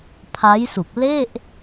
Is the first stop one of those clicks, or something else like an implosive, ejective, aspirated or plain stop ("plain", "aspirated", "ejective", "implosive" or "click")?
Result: aspirated